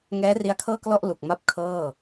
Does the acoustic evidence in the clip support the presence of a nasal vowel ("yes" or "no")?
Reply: no